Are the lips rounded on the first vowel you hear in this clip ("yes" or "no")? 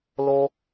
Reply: yes